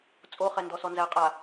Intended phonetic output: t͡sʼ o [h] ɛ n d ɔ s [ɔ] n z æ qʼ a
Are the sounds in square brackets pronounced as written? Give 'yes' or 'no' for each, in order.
no, yes

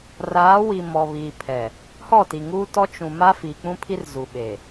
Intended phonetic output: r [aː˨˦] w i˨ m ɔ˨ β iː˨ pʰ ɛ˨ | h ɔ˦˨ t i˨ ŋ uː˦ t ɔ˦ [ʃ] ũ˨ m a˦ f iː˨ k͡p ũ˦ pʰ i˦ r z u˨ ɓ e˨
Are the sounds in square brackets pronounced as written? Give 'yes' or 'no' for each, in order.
yes, no

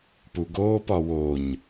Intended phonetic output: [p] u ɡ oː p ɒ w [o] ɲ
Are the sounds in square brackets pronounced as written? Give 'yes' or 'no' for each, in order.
yes, yes

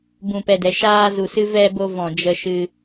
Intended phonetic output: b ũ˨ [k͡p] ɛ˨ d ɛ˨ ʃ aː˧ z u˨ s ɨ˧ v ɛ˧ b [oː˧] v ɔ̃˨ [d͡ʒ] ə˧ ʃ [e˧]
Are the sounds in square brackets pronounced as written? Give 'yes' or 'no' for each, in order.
no, no, yes, no

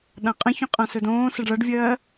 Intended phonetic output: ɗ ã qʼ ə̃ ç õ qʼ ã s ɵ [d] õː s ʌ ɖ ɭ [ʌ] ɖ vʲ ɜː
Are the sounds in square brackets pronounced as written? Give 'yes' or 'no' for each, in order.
yes, yes

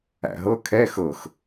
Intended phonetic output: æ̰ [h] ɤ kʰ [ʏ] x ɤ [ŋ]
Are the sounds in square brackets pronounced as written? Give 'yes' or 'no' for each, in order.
no, no, no

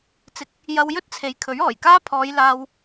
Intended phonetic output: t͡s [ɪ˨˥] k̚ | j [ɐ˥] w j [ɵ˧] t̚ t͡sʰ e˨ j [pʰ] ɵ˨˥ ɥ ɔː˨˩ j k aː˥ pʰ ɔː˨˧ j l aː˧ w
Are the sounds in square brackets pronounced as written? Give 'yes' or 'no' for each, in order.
yes, no, no, no

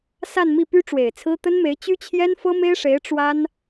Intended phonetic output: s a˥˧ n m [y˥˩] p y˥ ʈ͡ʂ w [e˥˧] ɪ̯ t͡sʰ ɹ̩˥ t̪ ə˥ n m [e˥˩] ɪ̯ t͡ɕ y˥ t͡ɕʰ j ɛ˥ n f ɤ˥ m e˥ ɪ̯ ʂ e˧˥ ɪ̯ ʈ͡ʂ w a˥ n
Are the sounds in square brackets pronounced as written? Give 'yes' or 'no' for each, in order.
no, no, no

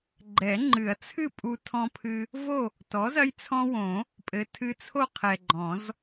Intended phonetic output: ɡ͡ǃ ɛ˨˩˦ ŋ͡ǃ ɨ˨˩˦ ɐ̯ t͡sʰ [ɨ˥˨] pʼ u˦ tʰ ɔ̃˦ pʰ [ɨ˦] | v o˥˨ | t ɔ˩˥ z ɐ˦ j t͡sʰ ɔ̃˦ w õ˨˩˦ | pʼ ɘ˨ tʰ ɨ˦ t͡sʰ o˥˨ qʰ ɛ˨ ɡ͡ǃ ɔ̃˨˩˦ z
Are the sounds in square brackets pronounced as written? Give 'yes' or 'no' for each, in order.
yes, yes

